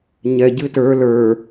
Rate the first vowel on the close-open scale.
mid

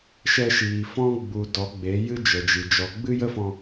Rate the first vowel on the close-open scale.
mid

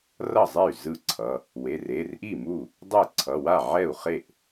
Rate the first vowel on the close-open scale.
mid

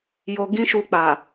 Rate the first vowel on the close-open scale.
mid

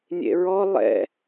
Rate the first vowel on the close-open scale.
mid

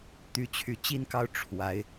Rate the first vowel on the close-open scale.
close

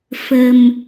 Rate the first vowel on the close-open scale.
mid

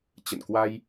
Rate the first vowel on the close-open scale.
mid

